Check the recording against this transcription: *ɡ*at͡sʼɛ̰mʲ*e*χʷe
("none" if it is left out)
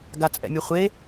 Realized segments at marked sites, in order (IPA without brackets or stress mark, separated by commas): ɡ, ɛ